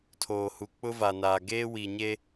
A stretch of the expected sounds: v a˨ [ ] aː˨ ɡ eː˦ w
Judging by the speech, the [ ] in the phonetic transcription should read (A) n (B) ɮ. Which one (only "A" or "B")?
A